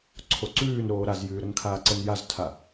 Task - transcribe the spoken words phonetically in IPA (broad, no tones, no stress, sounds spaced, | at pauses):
ǀʰ o ǀ ʉː n ɾ oː ɾ a z j ʉː ɾ ə n kʰ aː ǀ ə n j a z tʰ a